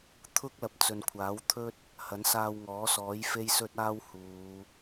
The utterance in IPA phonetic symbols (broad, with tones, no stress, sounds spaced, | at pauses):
t̪ʰ ʊ˥ k̚ l ɐ˨ p̚ t͡s ɵ˨ n kʷʰ aː˨˥ w t̪ʰ ɵ˥ t̚ | h ɐ˨˥ n s aː˧ w ŋ ɔː˨˥ s ɔː˨˥ j f e˥ j s ɵ˥ t̚ aː˥ w h uː˨˧